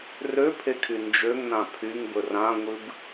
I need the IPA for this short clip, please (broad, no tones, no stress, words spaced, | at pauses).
røpʰekʰy nd͡ʒøŋnã pʰyŋbɵ rãŋʷɨb